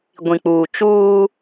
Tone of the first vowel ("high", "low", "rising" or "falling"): low